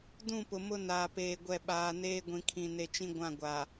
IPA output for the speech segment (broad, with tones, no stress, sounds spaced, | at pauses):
d ũ˦˨ p ʊ˨ m ʊ˦ n aː˨ p eː˨ ɡʷ ɛ˨ ɓ aː˨ n eː˦ ɡʷ ĩ˨ kʰ ĩ˨ n e˨ t͡ʃ ĩ˦ ɡʷ ã˦˨ ɡʷ a˨